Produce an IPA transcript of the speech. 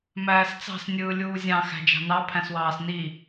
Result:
m æː s t͡s ɑ̤ s nʲ ɯː lʲ uː zʲ ɑ̃ x æ̤ d͡ʒ ɑ̤ n ɑ pʰ æ̃ s w ɑː s n i

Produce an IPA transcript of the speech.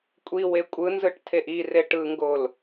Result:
kʷʼ i w e kʷʼ ɯ n z ɯ ʈ tʰ e ʔ i r e ʈ ɯ ŋ ɡ o l

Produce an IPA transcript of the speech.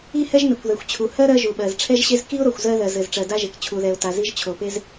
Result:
i˥ h ɛ˥ ʒ n ɘ˩ kʷ ð ɛ˩ xʷ t͡ɕʰ u˩ h ɜ˥ ɾ ɜ˥ ʒ u˩ ɓ ɜ˩ z ʈ͡ʂʰ ɛ˥ ʒ ɕ e˥ z k i˥ ʊ̯ ɾ o˩ xʷ z ɜ˥ ð ɜ˩ z ɘ˩ z ʈ͡ʂ ɜ˩ d a˥ ʒ e˩ k t͡ɕʰ u˩ ð ɛ˩ ʊ̯ t a˩ z i˥ ʒ t͡ɕʰ o˩ p e˥ z

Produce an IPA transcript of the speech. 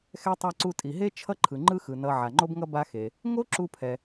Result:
x ɛ˧ tˤ a˧ ǀ u˧ tʼ i˩ ɦ e˥ t͡ʃʰ ʌ˥ ǃʰ ɯ˩ ŋ͡ǃ ɯ˥ x ɯ˩ n ʌ˧ ʕ a˩ ŋ͡ǃ o˥ b ŋ ʌ˥ b a˥ x e˩ | ŋ o˥ ǁ u˧ pʰ ɛ˩

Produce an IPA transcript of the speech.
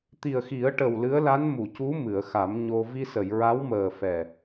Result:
t̪ i˨˩ ə̯ x i˨˩˦ ə̯ ʈ ə˨˩ w l ɨ˧˥ ə̯ l a˧˥ n m u˨˩˨ c u˧˥ m ɨ˨˩˨ ə̯ x a˨˩˦ m ɲ o˧ v i˧ s ə˨˩˨ j ɹ a˧˥ w m əː˨˩ f ɛ˨˩

